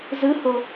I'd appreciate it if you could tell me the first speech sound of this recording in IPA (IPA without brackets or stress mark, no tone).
z